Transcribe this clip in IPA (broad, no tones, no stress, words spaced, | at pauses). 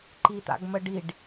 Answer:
ǃit̪a̰ɡməɖiɖ